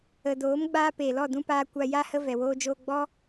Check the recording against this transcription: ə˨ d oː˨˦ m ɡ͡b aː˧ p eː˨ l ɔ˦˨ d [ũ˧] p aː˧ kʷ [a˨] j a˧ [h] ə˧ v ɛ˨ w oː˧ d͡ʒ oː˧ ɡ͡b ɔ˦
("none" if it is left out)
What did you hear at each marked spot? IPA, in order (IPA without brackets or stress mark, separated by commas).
ũ˧, a˧, h